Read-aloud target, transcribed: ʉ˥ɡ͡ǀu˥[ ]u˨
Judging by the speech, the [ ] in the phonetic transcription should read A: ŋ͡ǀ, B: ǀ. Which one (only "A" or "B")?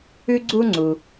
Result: A